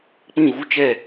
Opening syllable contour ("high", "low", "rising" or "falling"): falling